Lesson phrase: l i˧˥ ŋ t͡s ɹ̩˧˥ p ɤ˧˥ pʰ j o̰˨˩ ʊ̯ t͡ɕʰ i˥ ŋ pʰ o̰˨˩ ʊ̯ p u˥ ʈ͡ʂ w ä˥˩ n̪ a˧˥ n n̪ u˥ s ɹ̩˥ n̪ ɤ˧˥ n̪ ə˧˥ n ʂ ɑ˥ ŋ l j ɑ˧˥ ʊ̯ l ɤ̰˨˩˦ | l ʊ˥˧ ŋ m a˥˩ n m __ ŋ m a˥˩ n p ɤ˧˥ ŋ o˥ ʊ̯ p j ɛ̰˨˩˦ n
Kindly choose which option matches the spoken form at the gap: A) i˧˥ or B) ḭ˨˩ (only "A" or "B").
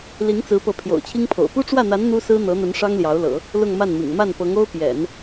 B